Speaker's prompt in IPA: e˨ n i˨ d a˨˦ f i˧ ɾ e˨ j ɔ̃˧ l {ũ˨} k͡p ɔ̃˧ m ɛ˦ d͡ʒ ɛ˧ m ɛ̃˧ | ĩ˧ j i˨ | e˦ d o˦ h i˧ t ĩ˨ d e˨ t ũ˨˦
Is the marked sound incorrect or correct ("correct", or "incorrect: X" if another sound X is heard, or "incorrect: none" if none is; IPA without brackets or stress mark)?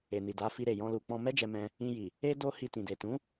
incorrect: u˨